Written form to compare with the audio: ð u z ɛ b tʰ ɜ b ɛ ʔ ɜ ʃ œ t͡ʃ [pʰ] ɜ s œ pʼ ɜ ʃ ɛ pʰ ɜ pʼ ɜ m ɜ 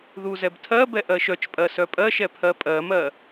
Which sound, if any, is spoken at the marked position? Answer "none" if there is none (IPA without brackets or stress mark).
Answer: pʼ